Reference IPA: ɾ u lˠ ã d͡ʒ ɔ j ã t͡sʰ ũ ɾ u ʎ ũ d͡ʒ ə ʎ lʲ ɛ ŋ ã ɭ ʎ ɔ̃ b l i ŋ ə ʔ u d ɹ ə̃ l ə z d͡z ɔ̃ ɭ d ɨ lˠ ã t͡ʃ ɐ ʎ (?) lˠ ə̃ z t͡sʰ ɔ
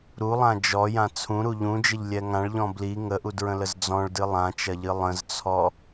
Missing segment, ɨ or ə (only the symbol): ɨ